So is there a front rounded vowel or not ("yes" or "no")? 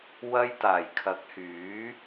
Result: yes